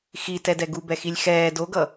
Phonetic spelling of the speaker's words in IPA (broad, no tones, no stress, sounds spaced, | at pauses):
x i t ɛ d ɛ ɡ u b ɛ x i lʲ x ɛː d o ɡ ʌ